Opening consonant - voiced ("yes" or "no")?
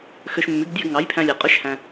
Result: no